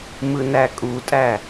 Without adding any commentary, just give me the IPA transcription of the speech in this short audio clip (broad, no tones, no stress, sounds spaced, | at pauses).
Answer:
m ɯ n æ kʼ u tʼ æ